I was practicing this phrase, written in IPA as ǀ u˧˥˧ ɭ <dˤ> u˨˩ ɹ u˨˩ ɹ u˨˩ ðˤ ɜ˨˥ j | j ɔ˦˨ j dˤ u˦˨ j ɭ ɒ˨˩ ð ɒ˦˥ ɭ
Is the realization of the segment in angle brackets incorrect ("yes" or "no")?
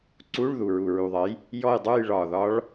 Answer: yes